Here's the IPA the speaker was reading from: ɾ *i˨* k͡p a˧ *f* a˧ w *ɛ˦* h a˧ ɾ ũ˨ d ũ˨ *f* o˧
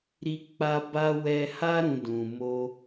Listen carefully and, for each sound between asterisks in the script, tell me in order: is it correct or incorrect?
incorrect: i˧, incorrect: b, incorrect: ɛ˧, incorrect: m

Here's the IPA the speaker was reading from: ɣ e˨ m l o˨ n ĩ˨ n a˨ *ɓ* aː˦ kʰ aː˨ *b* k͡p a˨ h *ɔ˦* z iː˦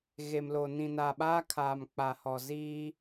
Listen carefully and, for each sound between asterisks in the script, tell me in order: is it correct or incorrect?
correct, incorrect: m, incorrect: ɔ˨

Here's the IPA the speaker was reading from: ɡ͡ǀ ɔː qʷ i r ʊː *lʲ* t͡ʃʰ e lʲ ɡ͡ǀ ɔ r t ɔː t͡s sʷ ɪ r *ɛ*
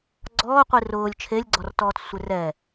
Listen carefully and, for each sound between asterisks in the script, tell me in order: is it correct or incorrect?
correct, correct

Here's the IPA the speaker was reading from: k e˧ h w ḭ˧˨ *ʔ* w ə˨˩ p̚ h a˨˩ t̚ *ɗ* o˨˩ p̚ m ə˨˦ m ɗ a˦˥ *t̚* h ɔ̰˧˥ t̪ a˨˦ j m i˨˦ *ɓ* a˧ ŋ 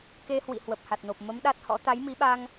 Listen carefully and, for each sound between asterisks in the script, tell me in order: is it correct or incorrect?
incorrect: h, incorrect: n, correct, correct

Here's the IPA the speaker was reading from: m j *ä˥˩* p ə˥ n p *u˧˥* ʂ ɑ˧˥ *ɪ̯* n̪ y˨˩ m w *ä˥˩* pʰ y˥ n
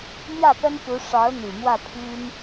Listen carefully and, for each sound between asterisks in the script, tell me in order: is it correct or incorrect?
correct, correct, incorrect: ʊ̯, correct

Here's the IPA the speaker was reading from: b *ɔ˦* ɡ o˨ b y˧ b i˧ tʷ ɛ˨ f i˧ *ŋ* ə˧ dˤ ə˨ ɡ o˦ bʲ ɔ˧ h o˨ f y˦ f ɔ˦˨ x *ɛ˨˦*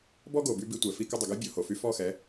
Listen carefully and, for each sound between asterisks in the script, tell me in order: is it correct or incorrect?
correct, incorrect: k, correct

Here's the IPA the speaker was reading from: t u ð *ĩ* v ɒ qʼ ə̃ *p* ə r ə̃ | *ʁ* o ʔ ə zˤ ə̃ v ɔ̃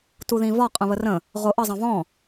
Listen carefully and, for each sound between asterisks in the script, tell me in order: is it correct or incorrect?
correct, incorrect: β, correct

